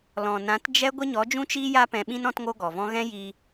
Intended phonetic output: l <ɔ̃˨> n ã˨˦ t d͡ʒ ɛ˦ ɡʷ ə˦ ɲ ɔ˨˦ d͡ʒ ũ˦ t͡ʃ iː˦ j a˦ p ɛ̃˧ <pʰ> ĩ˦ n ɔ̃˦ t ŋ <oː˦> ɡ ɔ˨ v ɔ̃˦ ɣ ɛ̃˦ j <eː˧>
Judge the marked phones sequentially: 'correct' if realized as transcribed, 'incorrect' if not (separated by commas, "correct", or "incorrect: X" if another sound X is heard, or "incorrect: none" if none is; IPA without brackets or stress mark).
correct, incorrect: ɓ, incorrect: o˦, incorrect: iː˧